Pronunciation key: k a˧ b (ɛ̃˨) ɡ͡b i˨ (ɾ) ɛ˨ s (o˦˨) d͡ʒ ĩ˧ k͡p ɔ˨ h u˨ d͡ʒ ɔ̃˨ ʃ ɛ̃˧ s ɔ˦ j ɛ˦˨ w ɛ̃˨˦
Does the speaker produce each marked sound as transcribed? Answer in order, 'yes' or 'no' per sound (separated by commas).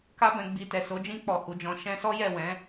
yes, no, no